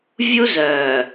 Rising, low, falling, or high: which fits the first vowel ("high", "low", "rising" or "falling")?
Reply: high